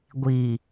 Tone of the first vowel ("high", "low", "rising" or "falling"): low